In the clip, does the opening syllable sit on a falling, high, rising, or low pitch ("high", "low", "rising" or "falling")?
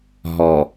low